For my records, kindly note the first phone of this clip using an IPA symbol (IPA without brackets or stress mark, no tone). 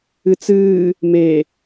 ɨ